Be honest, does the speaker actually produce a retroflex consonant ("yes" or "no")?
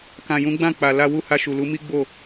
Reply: no